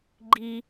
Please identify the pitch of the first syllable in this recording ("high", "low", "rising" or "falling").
high